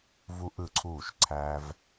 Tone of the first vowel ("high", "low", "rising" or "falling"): high